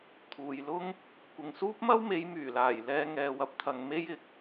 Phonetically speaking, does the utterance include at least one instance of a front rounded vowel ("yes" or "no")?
yes